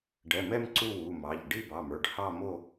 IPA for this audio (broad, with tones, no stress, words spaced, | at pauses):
ɖɛ˩˧˩mɛ˥˧m ǀu˥˧wu˩˧˩mɑ˩˧˩ʎ ɖi˥˧bɑ˩˧˩mə˞˩˧˩ɖ hɑ˥˧mo˥˧